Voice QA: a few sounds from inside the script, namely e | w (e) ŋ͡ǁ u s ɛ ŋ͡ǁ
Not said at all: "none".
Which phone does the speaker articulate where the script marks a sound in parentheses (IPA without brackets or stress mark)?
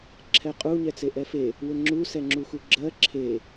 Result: ɘ